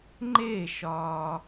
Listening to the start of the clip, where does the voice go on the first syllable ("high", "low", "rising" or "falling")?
falling